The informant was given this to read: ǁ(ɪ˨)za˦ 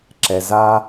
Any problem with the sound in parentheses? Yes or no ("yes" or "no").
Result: yes